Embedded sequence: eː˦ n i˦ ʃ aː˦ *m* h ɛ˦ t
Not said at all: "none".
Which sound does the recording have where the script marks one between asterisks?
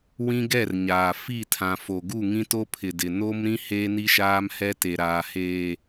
m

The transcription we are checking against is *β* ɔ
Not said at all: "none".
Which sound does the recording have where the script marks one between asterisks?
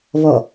β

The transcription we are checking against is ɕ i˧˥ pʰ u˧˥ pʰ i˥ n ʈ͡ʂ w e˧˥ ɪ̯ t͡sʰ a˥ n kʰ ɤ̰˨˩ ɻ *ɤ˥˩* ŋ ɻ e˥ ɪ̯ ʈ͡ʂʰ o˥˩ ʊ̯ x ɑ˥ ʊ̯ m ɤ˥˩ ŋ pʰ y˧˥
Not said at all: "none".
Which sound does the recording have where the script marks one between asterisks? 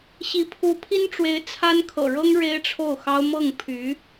ɤ˥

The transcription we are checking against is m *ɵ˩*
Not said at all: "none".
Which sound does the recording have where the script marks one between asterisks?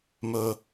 ɵ˧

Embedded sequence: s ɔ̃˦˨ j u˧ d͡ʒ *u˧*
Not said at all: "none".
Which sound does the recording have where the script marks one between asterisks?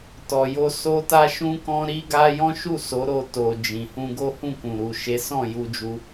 u˧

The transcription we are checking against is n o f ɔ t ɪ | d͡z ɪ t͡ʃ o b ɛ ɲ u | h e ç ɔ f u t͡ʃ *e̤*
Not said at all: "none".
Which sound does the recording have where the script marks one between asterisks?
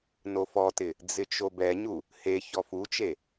e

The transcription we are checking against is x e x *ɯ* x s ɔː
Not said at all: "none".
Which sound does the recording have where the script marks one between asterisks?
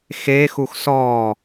u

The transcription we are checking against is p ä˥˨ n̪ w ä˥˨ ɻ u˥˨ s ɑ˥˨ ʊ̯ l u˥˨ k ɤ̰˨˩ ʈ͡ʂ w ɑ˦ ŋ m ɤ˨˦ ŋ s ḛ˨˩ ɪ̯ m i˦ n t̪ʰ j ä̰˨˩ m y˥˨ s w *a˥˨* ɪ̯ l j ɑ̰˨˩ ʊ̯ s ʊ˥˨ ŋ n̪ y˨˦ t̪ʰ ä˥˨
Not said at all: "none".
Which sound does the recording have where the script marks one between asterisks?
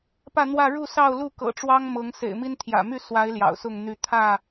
a˨˦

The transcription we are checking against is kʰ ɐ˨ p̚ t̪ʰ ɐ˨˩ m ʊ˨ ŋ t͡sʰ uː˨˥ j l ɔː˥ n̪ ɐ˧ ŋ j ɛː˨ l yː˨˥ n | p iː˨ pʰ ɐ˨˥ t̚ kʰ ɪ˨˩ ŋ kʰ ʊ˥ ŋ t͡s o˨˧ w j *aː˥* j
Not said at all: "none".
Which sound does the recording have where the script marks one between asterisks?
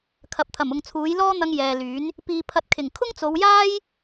aː˥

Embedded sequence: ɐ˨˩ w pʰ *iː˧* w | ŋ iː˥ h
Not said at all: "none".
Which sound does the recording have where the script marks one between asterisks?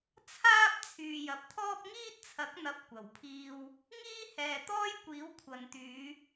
iː˧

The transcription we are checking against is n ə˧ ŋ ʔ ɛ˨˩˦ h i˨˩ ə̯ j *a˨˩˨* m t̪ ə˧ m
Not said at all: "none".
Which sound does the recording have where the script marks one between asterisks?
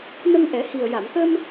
a˨˩˨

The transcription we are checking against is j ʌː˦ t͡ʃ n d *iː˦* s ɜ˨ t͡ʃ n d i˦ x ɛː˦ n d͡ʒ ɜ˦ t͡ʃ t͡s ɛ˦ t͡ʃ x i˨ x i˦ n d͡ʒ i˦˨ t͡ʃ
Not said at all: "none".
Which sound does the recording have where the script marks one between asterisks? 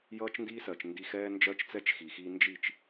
iː˦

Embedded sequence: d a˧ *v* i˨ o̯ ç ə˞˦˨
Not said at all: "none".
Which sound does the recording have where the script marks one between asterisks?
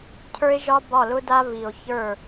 v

